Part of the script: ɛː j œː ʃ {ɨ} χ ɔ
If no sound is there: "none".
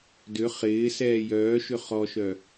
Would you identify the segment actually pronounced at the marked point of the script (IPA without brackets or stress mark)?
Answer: ʏ